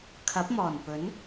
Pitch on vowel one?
rising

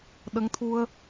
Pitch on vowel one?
rising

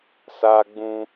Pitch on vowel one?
high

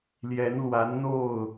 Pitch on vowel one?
rising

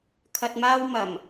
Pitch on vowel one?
low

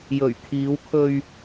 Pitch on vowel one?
low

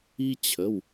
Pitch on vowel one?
high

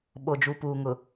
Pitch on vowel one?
low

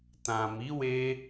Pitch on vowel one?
low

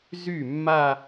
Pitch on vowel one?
falling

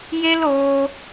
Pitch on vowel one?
high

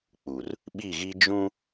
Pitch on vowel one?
low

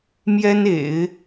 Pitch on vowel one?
high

